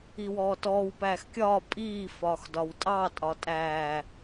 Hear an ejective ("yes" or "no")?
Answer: yes